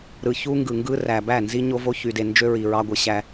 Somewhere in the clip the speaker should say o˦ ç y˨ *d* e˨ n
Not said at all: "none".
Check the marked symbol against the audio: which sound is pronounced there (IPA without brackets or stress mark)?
d